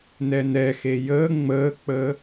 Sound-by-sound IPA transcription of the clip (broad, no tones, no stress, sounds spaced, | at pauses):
n ɛ n ɛ x e j əː ŋ͡m əː k͡p əː